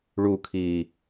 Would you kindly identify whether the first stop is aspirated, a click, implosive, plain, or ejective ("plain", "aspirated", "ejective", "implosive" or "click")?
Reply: aspirated